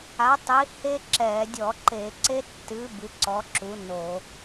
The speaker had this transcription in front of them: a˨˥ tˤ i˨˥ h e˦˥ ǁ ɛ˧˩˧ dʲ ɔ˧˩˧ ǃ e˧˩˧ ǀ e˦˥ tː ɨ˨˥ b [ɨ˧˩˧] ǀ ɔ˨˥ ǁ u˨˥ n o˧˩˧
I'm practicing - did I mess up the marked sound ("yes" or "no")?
yes